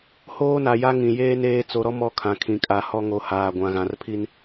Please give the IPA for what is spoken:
h oː˦ n a˨ j a˦ ŋ ĩ˨ j eː˦ n eː˦ t͡s o˨ ɾ ɔ˦ m ɔ˦ kʰ ã˨ kʰ ĩ˨ kʼ a˨ h ɔ˦ ŋ o˨ h aː˨ ɡʷ ã˨ ɣ ã˨ r pʰ i˦ n

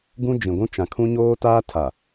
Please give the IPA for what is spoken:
ɡ ũ˦ d͡ʒ ĩ˨ ɡʷ ũ˦ t͡ʃ ã˨ kʰ ũ˦ ɲ oː˦ t aː˦ tʰ a˨

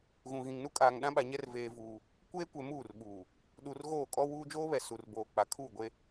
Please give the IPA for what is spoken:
ɣ ũ˨ ɣ ĩ˨ ŋ n u˦ kʼ aː˨ ŋ ɗ ã˦ ɓ a˨ ɲ ɛ˦ r v eː˦ v uː˦ | kʷ eː˦ kʷ ɛ˨ m uː˦˨ r ɓ uː˨ | ɗ u˨ r ɣ oː˦˨ kʼ ɔ˦ w uː˦ d͡ʒ oː˦ β ɛ˨ s u˨ r b oː˨ k͡p a˨ kʰ uː˦˨ ɡʷ e˦

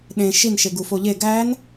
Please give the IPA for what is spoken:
ɗ ẽ ʃ i n ʃ e ɡ u f o ʎ e ɡ æ n

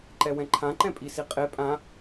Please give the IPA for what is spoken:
ǃ ɛ w ɛ̃ ǃʰ ã ǃ ɛ̃ pʼ i s i qʼ e pʼ ã

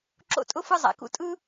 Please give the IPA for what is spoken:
ǁ o̰˥˩ tʼ ʊ˥ f ɯ˥ zˤ a̰˧ k ṵ˥ tʼ ɯ˥

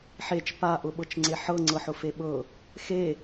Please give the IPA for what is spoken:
ħ e t͡ʃ p a ʔ ʊ ɓ ɤ t͡ʃ ŋ͡ǀ e ħ ɤ ŋ͡ǀ ɤ ħ ʊ f e ɓ ɤ | x e

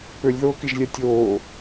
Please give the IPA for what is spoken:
p ø lʲ ð oː k i ʒ lʲ æ tʲ oː

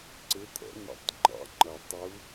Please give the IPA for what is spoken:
ǀ ɪ˧˥ t̪ʰ ɛ̰˩˥ n ḭ˧˥ tˤ ŋ͡ǃ ɑ̰˧˥ ŋ͡ǃ ʌ˨˩ tˤ u˧˥

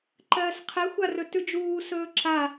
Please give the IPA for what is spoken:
ǃ ɜː s qʰ ɛ xʷ a r ɵ t ʉ d͡ʒ uː s ɵː ǁ a

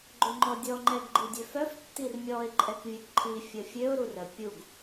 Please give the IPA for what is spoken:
ɡ͡ǃ ø ŋ͡ǃ ɔ dʲ ɔ ŋ͡ǃ ɛ ɡ ɡ͡ǃ i dʲ ø f œ f tː i r mʲ ɔ ɪ̯ ǃʼ ɛ k vʲ œ ɡ ǃʰ i fʲ ə fʲ ø ʊ̯ ɾ u r ə pʲ u ɡ

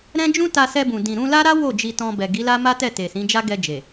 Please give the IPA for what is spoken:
ɾ ɛ̃˦ d͡ʒ ũ˦ t a˧ s ɛ˧ b ũ˨ d ĩ˨ ɾ ũ˧ l a˦ ɾ a˦ w o˦˨ d͡ʒ i˧ t ɔ̃˧ b ɛ˨ ɡ i˨˦ l a˦ m a˦ t ɛ˦˨ t e˨ s ĩ˨˦ d͡ʒ a˦ ɡ ɛ˧ d͡ʒ e˨

